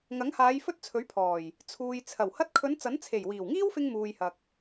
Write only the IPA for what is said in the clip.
ŋɐ˨˥ŋhaː˨˧j fɵ˥t̚t͡sʰɵ˨˥ɥpʰɔː˨˩j | t͡sʰuː˨j t͡sʰɐ˨˩w hɐ˧t̚kʰɵ˨˧n t͡sɐ˨˥nt͡sʰe˨˩jwiː˨˩w ŋiː˥wfɪ˧ŋ muː˨jhɐ˨k̚

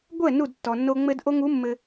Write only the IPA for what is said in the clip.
ɡʷɛ˦˨ nu˦˨dtːɔ˨nːo˧ ŋ͡mɘ˧dʔo˧ŋu˨˦ mːɘ˧

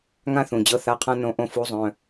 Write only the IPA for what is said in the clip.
ŋã˥θũ˩˧˩d͡ʑɤ˧˥˧ θa˧˥˧qʰã˥ nõ˧˥ʔõ˥˨ fu˧˥zˤœ̃˩˧˩

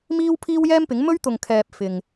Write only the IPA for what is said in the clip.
miː˥wpʰiː˥w jɛː˥mpɪ˨˥ŋ mɵ˥ɥ t̪ʊ˨ŋkʰɛː˨p̚ fɪ˨ŋ

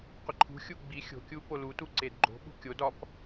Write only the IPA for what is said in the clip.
qʷɪǃʰṳxʲu ɡ͡bi xʲo̤kʲu polutu ǀedɡ͡ǃo̤ɓṳ kʲod ɒp

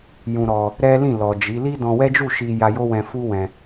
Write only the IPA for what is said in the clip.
jũ˧ɾɔ˧ | ɾɛ˦lĩ˦˨lɔ˨ d͡ʒi˨˦ li˦dɔ̃˧wɛ˦d͡ʒu˦˨ ʃi˧ja˧jo˦wɛ̃˧ fu˦ wɛ̃˦

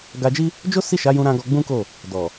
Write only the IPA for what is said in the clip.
ɡa˧d͡ʒi˦ | d͡ʒo˦ si˦˨ʃa˨˦jũ˧ ɾã˧ ɡɔ˧ɡ͡bũ˦ko˦˨ | dɔ˨

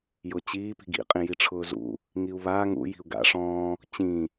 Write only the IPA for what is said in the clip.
jʊt͡ɕiːpi̤ɡ ḭqʼĩ jiʈ͡ʂʰʊːzṵ | ŋiu̯βaː ŋṵji̤u̯ ɡa̰ ʂɔ̃ː | t͡ɕĩ

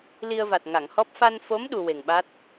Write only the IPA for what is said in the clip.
li˧ə̯va˨˩t̚ ŋa˨˩˨ŋhɔ˦˥p̚ fa˧nfo˧˥m ɗu˧we˨˩ŋɓa˦˥t̚

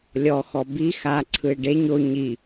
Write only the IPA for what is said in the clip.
lʲɔxɔ bi xaǀʰɯe̯ ɖeɲ o ɲi

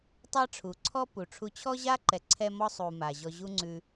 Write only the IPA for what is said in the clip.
tˤa˥ʈ͡ʂʰu˩ǀʰɔ˥ pu˩ʈ͡ʂʰu˧ t͡ɕʰɔ˥ʑa˥ǃɛ˩ǀʰɛ˧ mɔ˧sˤu˩ ma˩ʑɔ˧ʑu˥ŋ͡ǀʉ˧

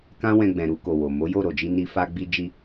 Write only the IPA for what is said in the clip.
kã˦wɛ̃˧ɡ͡bɛ̃˨ɾu˧ ko˨wo˨ mo˨˦ jo˦˨ɾo˨d͡ʒi˧ ni˧ fa˧ɡ͡bi˧d͡ʒi˧

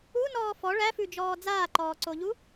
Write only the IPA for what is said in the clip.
unɔː fɔ ɭæfʉd͡ʒɔː d͡zaːǃɔːǀoʎu

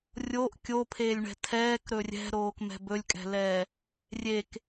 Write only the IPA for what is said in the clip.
rʲoʔ kʲopʰeːlʲɳɛ̤ tʰɛːkɾɵ rʲɛ̤ɾoːkmɛ̤ bɵlʲkʼɛ̤lɛː | rʲek

